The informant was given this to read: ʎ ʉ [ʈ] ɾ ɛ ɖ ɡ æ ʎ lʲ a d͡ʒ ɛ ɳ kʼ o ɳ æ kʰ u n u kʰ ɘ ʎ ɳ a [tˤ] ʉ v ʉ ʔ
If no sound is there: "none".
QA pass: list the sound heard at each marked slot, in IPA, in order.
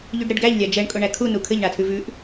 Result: ɖ, tʰ

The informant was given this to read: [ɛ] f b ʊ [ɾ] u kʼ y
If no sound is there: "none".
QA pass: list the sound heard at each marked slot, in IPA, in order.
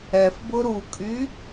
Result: ɛ, ɾ

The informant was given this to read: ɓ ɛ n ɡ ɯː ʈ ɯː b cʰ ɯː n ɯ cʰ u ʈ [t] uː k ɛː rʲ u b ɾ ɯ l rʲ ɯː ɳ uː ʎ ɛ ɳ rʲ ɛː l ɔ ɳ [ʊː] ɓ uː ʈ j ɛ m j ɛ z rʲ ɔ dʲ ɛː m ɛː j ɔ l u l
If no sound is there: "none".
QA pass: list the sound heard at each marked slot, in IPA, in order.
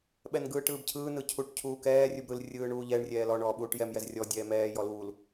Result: cʰ, ɔː

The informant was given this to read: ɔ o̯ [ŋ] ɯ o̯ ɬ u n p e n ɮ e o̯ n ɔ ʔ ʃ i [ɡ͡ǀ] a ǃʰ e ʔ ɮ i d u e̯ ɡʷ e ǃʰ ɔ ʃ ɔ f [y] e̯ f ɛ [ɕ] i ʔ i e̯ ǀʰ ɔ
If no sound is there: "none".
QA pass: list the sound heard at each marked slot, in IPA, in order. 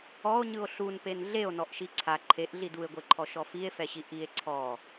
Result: ɲ, ǀʰ, i, ɕ

